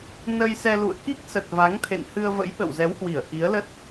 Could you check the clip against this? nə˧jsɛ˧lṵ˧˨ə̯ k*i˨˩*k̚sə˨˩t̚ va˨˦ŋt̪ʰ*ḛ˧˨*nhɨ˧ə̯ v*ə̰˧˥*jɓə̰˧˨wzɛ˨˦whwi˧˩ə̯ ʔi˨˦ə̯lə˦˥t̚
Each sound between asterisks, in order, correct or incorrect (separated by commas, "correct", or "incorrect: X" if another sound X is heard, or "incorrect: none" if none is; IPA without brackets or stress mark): incorrect: i˦˥, correct, correct